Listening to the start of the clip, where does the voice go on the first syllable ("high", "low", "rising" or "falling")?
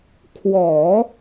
low